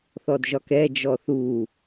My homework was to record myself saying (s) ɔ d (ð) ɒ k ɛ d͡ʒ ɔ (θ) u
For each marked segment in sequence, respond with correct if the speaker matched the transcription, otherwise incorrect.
incorrect: θ, incorrect: ʒ, correct

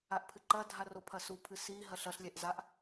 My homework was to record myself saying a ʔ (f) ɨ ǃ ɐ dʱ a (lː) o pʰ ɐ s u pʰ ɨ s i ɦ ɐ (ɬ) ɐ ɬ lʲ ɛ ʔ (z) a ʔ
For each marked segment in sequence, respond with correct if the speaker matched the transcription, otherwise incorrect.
incorrect: pʰ, incorrect: r, correct, correct

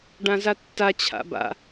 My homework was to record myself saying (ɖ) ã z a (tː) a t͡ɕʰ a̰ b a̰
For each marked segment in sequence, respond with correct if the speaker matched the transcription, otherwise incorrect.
correct, correct

